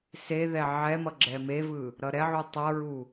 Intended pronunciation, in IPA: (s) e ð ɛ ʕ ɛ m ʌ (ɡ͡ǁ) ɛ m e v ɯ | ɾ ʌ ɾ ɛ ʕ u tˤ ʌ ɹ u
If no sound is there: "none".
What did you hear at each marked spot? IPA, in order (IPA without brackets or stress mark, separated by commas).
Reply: s, ɡ͡ǁ